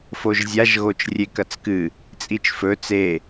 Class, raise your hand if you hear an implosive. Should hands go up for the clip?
no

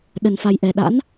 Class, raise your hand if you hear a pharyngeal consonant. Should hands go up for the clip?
no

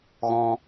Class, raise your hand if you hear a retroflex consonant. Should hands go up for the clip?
no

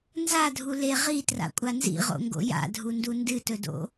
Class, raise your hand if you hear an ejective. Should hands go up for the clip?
yes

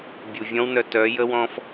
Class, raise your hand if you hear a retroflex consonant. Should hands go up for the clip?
no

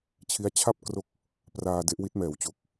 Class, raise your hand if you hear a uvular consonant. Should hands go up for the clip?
no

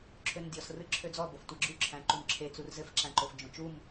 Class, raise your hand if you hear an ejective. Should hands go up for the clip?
no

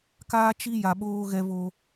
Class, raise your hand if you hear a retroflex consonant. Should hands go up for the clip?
no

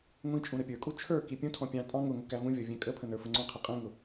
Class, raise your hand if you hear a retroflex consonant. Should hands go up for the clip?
no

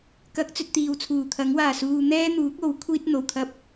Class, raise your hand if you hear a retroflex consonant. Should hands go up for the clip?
no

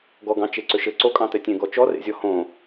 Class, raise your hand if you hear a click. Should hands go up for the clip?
yes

